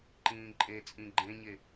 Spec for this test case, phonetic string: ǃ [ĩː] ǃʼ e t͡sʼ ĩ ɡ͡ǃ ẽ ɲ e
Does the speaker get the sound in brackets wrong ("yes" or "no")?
no